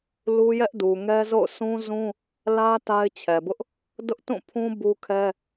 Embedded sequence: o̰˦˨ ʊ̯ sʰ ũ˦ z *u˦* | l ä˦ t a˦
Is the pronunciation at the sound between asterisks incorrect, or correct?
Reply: incorrect